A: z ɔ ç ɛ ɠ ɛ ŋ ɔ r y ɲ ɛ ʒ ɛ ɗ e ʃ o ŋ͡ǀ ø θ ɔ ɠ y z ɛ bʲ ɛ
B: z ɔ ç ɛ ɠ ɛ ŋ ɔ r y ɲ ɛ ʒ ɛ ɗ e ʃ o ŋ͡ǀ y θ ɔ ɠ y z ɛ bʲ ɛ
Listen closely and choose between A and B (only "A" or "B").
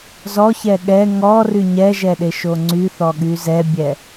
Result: B